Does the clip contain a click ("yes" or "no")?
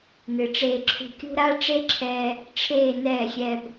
yes